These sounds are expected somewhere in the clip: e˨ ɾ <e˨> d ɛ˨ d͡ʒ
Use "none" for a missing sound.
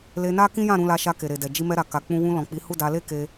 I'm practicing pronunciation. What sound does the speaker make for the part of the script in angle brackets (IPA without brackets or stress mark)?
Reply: e˨